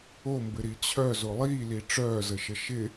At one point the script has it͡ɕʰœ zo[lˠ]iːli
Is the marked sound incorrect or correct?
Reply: correct